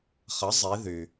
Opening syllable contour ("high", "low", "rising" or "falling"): rising